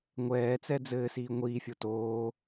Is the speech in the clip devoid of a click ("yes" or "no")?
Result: yes